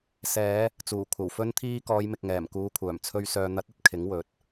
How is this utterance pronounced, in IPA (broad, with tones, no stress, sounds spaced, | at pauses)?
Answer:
s ɛː˨˧ | t͡s uː˨˩ kʷʰ ɐ˨˩ w f ɵ˧ n t̪ʰ iː˧ k ɔː˨˧ j m ɪ˨ k̚ ŋ ɛː˨˩ m k uː˨˧ kʷʰ œː˨˩ m t͡sʰ ɵ˨ ɥ s œː˨ n̪ ɐ˨˥ t̚ ɐ˧ t̚ kʰ ɪ˨˥ ŋ w ɵ˨˥ t̚